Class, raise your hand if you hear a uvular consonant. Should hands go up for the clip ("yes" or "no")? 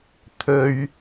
no